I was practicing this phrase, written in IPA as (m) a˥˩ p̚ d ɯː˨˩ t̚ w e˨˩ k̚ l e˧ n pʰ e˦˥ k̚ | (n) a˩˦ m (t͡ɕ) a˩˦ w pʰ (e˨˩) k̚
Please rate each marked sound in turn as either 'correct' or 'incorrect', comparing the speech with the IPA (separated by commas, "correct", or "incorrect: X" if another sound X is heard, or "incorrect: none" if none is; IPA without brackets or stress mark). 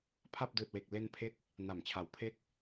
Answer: incorrect: pʰ, correct, incorrect: t͡ɕʰ, incorrect: e˦˥